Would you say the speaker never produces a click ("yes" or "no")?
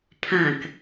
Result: yes